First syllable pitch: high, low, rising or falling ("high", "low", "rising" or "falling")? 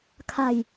falling